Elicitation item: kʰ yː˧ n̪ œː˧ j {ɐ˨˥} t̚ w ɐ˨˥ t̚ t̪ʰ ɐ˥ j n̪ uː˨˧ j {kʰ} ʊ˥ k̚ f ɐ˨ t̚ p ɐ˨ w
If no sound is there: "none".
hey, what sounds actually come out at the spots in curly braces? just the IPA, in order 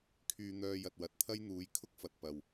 ɐ˨, kʰ

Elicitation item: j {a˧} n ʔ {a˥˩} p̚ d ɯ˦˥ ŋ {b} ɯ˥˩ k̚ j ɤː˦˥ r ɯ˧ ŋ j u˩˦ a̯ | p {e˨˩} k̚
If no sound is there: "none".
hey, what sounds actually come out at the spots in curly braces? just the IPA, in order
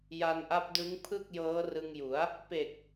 a˧, a˦˥, pʰ, e˨˩

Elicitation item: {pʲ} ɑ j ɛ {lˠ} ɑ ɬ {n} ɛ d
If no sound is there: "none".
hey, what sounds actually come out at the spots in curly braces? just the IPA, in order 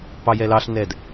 p, l, n

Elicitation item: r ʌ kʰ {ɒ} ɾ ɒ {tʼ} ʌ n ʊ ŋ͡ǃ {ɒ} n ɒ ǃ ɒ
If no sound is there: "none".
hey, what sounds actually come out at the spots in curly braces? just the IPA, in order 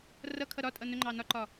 ʌ, tʼ, ɑ

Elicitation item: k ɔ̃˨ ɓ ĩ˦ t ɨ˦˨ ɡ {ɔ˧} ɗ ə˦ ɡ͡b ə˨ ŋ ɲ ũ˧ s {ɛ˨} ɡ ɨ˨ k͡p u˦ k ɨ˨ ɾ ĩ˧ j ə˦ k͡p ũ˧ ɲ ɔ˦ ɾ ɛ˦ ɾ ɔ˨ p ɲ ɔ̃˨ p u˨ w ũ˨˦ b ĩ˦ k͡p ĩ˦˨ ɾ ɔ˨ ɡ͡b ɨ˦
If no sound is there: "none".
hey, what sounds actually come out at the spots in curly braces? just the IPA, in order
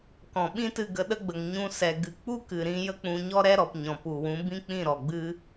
ə˧, ɛ˨

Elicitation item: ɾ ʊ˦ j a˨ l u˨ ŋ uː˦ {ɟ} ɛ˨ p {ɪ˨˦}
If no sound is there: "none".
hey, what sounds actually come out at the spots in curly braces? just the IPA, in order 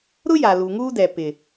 d, ɪ˨

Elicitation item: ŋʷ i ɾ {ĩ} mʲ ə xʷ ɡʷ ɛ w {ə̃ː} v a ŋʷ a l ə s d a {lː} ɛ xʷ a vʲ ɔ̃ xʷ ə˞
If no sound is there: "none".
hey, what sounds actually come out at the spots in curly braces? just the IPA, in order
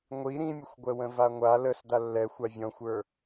ĩ, ə̃, lː

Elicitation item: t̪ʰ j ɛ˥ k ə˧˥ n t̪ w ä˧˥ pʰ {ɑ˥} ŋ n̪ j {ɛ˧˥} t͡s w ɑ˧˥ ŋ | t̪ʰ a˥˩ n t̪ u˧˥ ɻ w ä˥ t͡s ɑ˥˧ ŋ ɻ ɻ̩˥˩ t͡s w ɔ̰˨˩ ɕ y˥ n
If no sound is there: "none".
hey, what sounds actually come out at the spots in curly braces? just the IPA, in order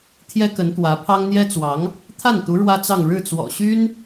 ɑ˥, ɛ˥

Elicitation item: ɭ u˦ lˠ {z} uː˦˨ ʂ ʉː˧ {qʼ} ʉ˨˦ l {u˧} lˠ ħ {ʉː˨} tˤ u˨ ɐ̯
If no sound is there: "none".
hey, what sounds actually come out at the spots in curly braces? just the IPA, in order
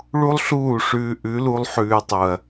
ɬ, ʔ, u˧, ʉː˧

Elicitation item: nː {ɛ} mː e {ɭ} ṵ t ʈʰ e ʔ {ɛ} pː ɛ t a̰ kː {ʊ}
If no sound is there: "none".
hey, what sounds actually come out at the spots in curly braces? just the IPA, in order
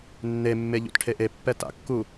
e, ʎ, e, u

